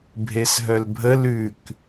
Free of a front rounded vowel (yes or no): no